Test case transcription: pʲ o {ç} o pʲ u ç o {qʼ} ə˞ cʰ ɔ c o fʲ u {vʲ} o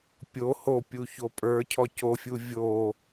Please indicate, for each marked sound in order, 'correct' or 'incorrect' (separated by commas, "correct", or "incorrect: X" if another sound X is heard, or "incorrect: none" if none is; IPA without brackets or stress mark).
incorrect: h, incorrect: pʼ, correct